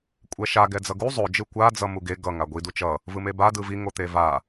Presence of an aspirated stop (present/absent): absent